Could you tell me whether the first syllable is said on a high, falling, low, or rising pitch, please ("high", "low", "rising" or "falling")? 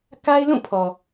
high